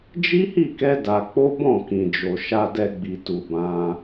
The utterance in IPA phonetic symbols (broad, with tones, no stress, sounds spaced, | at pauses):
d͡ʒ i˦ h i˦˨ k ɛ˧ d a˧ k͡p o˦ b ɔ̃˦˨ k ĩ˨ d͡ʒ o˨ ʃ a˨ d ɛ˨ ɡ͡b i˨ t u˨ b ã˧